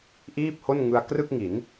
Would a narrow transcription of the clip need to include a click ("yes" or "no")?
no